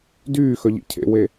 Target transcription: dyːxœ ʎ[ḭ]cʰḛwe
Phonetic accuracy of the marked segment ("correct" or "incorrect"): correct